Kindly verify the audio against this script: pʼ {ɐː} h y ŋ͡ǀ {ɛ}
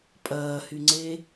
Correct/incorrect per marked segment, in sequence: correct, incorrect

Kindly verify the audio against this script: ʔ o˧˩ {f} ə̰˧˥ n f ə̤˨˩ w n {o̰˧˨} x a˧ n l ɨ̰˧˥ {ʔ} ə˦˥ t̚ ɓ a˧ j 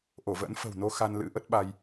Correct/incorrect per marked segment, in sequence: incorrect, incorrect, correct

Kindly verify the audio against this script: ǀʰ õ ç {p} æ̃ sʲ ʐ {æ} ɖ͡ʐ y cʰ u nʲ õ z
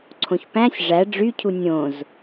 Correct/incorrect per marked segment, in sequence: correct, correct

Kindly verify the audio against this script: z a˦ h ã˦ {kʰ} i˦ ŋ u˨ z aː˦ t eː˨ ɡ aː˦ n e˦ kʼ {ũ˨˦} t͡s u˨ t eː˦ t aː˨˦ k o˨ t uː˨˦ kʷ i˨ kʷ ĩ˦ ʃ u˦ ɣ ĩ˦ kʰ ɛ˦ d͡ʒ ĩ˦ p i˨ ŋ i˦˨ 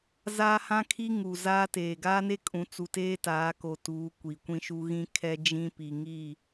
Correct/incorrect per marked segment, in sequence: correct, correct

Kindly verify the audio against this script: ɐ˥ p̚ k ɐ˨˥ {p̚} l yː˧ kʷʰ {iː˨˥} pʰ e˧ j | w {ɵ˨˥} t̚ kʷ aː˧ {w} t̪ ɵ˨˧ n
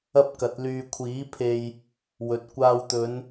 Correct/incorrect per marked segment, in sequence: incorrect, correct, correct, correct

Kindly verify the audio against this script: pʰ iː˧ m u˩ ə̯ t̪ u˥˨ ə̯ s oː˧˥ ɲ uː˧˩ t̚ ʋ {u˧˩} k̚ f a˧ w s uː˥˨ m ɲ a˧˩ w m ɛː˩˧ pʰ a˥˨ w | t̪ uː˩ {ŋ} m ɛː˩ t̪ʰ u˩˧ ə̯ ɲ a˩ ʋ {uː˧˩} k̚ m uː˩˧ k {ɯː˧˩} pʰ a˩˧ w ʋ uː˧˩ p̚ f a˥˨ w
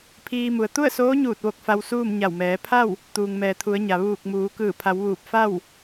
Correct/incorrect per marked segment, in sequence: incorrect, correct, correct, correct

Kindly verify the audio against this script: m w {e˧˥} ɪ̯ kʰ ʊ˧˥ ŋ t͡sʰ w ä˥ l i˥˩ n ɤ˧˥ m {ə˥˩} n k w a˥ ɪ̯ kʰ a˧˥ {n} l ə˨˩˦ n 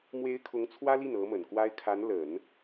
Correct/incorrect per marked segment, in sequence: correct, incorrect, correct

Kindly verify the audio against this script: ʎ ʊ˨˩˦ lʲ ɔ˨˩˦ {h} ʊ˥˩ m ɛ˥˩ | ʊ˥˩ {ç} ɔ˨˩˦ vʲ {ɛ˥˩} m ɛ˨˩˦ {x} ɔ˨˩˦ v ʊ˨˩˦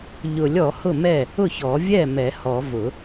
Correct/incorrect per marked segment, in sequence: correct, correct, correct, incorrect

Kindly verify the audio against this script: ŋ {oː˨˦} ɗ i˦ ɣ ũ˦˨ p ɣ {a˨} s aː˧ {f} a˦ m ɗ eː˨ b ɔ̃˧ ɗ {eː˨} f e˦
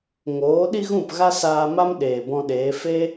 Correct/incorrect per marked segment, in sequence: correct, incorrect, incorrect, incorrect

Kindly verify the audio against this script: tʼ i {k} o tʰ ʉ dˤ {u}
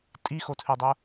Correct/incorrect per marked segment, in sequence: incorrect, incorrect

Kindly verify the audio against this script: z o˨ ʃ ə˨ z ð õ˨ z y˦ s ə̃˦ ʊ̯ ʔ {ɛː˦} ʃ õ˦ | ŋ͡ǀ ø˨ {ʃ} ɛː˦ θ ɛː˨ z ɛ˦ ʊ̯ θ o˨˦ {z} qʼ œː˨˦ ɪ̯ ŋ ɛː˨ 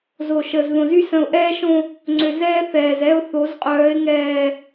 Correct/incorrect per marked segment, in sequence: correct, incorrect, correct

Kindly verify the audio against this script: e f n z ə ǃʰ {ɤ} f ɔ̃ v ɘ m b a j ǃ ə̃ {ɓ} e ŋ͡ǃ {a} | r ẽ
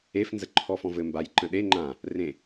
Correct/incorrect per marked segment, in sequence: incorrect, incorrect, incorrect

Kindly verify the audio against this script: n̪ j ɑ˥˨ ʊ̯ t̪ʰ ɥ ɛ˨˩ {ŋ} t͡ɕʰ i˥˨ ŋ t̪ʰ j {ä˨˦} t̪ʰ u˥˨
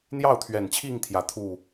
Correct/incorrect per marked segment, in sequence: incorrect, correct

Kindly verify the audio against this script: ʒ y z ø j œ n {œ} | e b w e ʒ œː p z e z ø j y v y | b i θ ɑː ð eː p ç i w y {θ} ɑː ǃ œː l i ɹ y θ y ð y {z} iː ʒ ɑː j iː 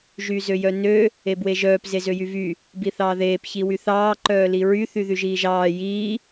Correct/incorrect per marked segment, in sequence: incorrect, correct, incorrect

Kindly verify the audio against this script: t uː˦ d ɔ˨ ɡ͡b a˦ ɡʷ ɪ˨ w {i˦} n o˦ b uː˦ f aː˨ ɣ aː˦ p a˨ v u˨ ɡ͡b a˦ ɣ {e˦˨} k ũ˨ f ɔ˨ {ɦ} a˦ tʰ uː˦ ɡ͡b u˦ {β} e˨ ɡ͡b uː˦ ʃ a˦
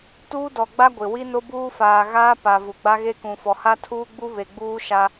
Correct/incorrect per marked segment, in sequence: correct, incorrect, incorrect, correct

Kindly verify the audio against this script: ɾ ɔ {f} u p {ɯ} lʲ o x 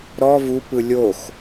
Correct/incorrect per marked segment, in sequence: incorrect, correct

